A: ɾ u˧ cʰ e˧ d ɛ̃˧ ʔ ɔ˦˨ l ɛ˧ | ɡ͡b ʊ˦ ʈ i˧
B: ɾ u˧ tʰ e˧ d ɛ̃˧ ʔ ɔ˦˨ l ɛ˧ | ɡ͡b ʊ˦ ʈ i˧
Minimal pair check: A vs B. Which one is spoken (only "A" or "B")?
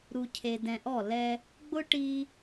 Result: A